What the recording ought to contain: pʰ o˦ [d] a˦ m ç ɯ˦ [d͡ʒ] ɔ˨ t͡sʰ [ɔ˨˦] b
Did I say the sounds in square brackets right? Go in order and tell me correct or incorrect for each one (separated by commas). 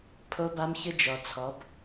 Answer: incorrect, correct, correct